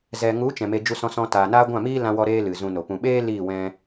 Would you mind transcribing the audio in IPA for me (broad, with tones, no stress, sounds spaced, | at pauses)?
z ɛ˨ ŋ u˨˦ t͡ʃ ɛ̃˨ m e˧ d͡ʒ u˧ s ɔ̃˧ s ɔ̃˧ t aː˨ n aː˦ ɡʷ ã˦˨ m iː˦ l ã˧ w ɔ˧ ɾ eː˦ l ɨ˨ z ũ˧ n o˨ p ũ˨ ɓ eː˦ l iː˦˨ w ɛ̃˧